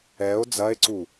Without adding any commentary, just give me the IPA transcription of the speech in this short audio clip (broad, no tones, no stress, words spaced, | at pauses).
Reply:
ɛo̯ d͡zɐe̯ǀu